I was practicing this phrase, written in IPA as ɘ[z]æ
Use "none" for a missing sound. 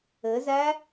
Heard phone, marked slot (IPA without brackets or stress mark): z